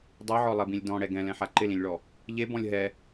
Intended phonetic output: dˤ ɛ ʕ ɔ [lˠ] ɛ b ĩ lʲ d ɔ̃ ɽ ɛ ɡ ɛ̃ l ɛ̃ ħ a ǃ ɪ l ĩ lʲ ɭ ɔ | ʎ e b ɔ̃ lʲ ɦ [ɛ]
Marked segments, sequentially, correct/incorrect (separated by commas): correct, correct